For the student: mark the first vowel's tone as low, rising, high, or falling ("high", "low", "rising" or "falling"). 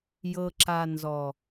low